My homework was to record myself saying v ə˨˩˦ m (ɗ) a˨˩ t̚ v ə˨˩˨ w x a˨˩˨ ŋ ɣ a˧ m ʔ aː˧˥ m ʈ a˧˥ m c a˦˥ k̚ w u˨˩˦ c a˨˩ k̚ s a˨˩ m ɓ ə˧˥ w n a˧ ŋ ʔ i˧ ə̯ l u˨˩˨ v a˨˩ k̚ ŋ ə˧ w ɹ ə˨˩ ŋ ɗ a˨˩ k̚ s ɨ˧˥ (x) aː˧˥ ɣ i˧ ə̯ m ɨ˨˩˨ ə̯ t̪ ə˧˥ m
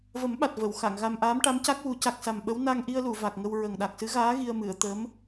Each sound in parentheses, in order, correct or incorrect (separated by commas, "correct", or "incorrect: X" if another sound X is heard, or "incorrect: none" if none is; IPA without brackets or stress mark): incorrect: ɓ, incorrect: ɣ